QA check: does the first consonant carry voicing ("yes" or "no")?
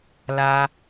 yes